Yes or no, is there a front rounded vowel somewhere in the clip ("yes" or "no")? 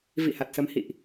no